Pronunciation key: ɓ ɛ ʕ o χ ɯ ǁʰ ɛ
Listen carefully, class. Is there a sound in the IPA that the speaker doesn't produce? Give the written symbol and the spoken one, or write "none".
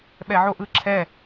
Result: χ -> ʔ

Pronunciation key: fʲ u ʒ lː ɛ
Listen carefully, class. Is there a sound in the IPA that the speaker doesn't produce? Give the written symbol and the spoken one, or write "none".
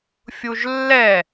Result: none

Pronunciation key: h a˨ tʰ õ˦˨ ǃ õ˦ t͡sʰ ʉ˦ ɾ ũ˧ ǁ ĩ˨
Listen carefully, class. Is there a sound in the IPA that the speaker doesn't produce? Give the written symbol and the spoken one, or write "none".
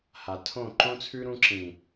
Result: none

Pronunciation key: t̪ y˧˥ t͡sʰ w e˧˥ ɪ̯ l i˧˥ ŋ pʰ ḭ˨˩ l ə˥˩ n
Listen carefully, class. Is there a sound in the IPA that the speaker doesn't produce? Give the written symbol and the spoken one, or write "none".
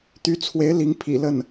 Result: none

